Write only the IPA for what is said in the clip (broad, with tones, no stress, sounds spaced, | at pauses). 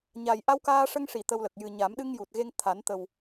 ɲ a˨˩ j ʔ a˧ w k aː˧ ʂ ə˧ ŋ ʂ i˨˩˨ t̪ ə˧ w l ə˨˩ k̚ j ɨ˨˩ ɲ a˨˩˦ m ɗ ɨ˧ ŋ j u˨˩ t̚ ɣ e˧ ŋ t̪ʰ a˨˩˦ n t̪ ə˨˩ w